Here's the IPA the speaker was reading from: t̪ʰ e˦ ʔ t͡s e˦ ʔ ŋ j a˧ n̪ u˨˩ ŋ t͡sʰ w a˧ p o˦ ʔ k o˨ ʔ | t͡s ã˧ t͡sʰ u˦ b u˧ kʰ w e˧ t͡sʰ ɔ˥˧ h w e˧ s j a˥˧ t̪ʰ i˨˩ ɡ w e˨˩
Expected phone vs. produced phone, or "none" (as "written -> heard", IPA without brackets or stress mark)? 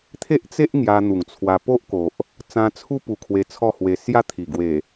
b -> p